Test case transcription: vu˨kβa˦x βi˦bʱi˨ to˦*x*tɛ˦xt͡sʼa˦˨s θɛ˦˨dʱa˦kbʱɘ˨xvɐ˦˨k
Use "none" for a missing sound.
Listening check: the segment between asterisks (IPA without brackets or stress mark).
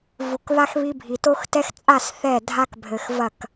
x